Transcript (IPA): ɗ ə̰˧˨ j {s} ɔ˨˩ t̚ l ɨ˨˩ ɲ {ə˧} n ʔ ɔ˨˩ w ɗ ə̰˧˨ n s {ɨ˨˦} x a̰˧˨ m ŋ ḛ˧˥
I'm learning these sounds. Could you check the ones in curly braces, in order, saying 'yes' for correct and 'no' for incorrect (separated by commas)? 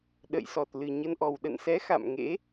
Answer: yes, yes, no